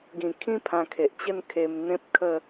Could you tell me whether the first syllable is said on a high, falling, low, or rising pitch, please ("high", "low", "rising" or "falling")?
low